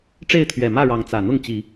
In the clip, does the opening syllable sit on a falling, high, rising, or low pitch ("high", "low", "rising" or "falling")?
falling